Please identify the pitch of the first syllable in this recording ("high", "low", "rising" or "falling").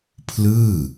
falling